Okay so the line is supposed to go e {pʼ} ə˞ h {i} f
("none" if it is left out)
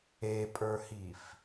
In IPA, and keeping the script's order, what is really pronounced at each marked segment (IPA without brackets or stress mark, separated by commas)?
pʼ, i